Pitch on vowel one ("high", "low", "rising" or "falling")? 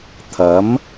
rising